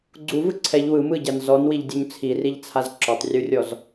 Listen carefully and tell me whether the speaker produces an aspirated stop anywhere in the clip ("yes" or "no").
yes